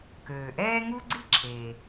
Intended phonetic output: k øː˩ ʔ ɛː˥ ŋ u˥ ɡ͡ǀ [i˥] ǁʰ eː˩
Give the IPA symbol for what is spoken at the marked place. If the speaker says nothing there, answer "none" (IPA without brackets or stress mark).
i˥